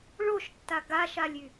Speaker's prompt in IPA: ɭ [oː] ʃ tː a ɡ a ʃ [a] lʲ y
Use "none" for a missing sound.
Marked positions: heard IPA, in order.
o, a

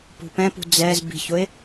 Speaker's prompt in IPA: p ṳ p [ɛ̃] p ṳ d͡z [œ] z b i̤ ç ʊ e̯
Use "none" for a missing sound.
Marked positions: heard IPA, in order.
ɛ̃, ɛ

